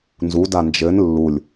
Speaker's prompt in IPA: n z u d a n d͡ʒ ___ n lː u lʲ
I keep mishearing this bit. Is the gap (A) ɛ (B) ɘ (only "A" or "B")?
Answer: B